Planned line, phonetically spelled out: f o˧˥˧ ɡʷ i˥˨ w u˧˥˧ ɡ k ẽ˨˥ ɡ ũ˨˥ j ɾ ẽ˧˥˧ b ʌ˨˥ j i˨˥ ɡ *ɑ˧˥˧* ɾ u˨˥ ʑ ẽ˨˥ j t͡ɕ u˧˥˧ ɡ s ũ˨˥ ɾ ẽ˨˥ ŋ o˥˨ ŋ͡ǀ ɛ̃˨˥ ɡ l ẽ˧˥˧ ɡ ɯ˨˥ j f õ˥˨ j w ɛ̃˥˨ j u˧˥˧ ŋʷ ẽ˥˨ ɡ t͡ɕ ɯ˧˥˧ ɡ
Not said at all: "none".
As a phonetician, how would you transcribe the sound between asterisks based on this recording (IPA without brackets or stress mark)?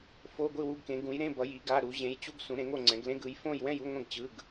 a˧˥˧